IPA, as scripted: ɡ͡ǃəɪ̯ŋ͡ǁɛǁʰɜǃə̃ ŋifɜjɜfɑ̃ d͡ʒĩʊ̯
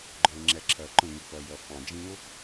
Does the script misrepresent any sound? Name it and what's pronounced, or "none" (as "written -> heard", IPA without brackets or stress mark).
none